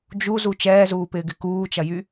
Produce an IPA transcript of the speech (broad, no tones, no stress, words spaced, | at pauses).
d͡ʒuzu t͡ʃɛːzuːpɪːɡɪ kuːt͡ʃɐjy